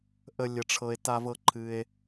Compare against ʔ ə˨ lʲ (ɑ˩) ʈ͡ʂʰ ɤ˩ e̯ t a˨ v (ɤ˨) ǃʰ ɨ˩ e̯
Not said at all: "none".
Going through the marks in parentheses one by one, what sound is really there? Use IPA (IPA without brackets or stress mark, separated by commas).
ə˩, ɤ˨